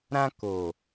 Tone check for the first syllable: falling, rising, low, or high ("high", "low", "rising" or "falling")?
high